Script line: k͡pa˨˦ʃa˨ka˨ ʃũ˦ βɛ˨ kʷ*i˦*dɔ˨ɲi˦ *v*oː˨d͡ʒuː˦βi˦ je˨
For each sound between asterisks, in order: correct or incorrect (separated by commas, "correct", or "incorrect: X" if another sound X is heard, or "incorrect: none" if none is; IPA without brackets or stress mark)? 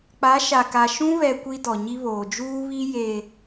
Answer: correct, incorrect: β